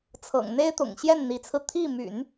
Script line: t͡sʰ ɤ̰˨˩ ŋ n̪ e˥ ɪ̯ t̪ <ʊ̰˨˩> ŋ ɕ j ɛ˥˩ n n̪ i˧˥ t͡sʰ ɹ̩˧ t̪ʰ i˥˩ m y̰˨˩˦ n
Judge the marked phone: correct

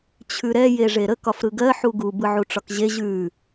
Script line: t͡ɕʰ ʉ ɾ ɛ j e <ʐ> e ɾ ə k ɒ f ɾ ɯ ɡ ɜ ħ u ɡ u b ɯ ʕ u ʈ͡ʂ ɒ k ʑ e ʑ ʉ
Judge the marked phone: correct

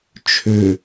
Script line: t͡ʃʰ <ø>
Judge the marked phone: correct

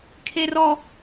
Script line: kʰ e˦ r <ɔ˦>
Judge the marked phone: correct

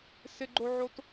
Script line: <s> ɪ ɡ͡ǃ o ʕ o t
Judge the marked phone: correct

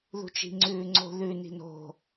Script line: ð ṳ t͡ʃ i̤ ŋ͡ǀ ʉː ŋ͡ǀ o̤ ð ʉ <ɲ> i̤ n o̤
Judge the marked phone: incorrect: n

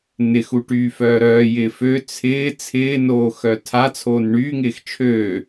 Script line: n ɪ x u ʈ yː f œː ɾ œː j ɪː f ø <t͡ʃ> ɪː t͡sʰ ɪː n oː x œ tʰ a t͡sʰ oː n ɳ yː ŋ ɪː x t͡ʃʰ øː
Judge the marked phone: incorrect: t͡sʰ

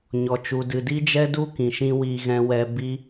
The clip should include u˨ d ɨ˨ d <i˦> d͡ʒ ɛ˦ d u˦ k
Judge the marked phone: correct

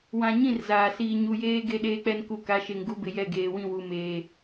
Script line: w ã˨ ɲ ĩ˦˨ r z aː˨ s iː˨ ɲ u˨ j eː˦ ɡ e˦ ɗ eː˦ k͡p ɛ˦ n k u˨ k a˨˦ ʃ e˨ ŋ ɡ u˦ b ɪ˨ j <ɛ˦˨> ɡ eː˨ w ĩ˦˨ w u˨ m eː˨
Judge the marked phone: correct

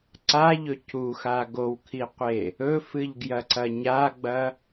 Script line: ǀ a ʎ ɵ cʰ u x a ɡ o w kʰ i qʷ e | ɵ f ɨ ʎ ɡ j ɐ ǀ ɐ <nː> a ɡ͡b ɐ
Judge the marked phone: incorrect: ɲ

